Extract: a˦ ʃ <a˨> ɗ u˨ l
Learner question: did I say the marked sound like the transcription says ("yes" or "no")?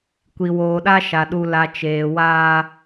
yes